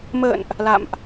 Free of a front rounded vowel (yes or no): yes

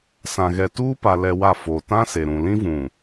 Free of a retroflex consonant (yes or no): yes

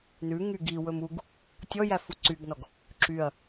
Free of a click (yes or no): no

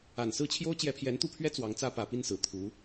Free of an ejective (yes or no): yes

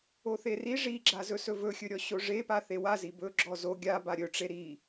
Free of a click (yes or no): no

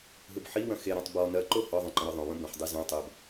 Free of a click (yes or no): no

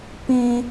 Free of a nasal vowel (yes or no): no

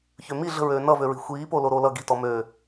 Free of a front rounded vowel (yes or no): no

